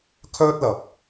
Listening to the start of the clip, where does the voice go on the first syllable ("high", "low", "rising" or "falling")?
high